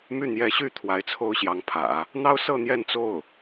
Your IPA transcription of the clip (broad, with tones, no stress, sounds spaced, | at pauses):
m y˥˩ n̪ j ɛ˧˥ ɕ y˥ t̪ʰ w a˧˥ ɪ̯ t͡sʰ o˥ ʊ̯ ɕ j ɑ˧˥ ŋ pʰ ä̰˨˩˦ | n̪ ɑ˥ ʊ̯ s ɤ˥˧ n̪ j ɛ˥˧ n t͡s o˥˩ ʊ̯